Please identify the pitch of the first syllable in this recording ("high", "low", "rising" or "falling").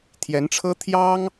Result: rising